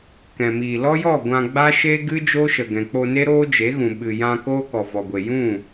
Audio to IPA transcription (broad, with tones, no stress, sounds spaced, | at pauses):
k ɛ̃˨ m iː˨ l ɔ˦ j ɔ˦˨ ɡʷ ã˧ ɡ͡b a˦ ʃ e˦ ɡ ɨ˦ d͡ʒ o˦ ʃ ə˨ ɡ ɛ̃˨ k͡p o˧ n e˦ ɾ oː˦ d͡ʒ e˨˦ ɣ ũ˨ ɓ ɨ˨ j ã˧ k oː˦ k ɔ˨ v ɔ˨ ɡʷ e˨ j ũ˦˨